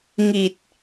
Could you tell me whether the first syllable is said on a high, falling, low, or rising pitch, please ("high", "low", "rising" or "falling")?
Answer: low